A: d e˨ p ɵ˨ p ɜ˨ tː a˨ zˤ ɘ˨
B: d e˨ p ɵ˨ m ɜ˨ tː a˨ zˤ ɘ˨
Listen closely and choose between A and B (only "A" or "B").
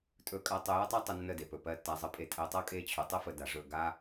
A